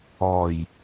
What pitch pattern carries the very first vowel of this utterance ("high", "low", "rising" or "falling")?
low